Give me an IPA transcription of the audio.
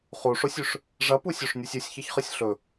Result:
χ u ʂ o sʲ ʉ ʂ | ʐ ɐ p u sʲ o ʂ nʲ u sʲ ɨ sʲ ç ɐ ç χ ɨ sʲ ɬ ɵ

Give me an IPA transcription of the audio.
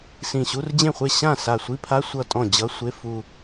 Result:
s ĩ˧˩ ɕ u˧˥˧ r d͡ʑ ẽ˥˩ χʷ e˥˩ ɕ ã˥˩ s a˧˩ sʷ i˧˥˧ pʰ a˧˥˧ sʷ ʌ˥˩ tʼ ɔ̃˥˩ d͡ʑ ʌ˧˥˧ sʷ e˧˥˧ f u˥˧

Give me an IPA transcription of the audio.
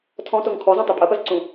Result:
tʰ ɔ̃ t o ŋ kʰ ɔ z ɔ̃ tˤ u pʼ ɐ p ɐ z ǀ ũ

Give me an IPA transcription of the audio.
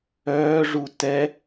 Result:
œː ʐ u t ɛ

